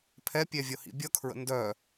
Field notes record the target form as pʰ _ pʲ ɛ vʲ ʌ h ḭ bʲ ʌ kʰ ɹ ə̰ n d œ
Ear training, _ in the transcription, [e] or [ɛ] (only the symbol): ɛ